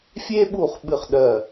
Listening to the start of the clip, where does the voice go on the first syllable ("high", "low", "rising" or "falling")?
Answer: high